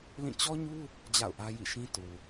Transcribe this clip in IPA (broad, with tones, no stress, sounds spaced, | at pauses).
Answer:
l ĩ˦˨ t͡ɕ ɔ˦ ɲ u˦ | d͡ʑ a̰˦˨ ʊ̯ ʔ ä˦ j ḭ˦˨ ʃ ĩ˦ t u˨